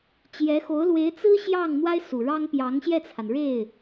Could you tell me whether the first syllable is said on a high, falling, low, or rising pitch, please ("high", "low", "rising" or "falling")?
rising